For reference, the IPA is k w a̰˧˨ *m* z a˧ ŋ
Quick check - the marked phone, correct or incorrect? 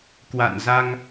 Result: incorrect